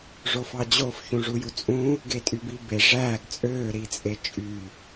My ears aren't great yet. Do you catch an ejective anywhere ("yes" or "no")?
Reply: yes